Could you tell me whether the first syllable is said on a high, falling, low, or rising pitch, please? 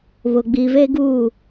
low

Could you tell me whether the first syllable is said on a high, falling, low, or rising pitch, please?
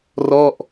falling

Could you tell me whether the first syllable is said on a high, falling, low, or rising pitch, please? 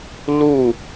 falling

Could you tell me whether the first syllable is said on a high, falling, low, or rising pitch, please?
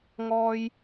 high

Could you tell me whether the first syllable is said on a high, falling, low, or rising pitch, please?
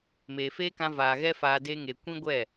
low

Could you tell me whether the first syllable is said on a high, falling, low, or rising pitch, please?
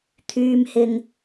low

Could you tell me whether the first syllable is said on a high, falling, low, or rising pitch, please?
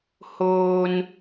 low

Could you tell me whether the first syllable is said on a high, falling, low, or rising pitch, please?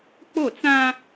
falling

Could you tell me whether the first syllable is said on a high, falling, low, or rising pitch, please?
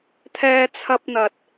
high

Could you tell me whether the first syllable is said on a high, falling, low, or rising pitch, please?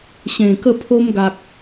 low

